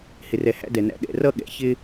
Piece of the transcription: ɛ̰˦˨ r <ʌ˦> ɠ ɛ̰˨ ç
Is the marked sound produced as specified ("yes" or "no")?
yes